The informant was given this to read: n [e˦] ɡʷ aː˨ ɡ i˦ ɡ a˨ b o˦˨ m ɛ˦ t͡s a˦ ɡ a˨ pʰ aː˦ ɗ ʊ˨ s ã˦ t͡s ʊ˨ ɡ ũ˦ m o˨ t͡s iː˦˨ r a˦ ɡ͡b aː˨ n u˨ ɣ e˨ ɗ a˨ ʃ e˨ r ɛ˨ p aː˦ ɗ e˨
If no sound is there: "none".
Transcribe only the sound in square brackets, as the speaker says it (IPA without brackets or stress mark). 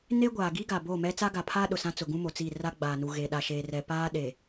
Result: e˦